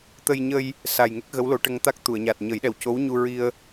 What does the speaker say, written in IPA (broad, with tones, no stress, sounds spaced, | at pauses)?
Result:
t̪ ə˧ j ɲ ə˧ j | s a˨˩ j ŋ e˦˥ k̚ ɣ ə˧˥ w l o˨˩˦ ʈ ə˧ ŋ t̪ a˦˥ k̚ t̪ u˨˩˨ ə̯ ɲ a˨˩ t̚ ɲ ə˨˩˦ j ɗ ɛ˨˩ w c o˧˥ w ɲ u˧ ɹ i˧ ə̯